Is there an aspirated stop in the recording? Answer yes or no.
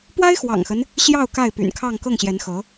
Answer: yes